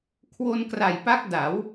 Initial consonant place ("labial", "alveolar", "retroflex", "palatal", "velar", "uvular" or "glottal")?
velar